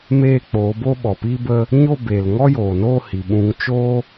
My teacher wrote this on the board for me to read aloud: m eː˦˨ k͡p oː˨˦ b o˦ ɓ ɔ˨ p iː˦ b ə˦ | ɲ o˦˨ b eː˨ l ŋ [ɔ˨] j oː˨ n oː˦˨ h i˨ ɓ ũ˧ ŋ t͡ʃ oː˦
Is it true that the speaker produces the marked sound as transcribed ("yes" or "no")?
no